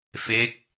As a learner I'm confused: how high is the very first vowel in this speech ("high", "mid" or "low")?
mid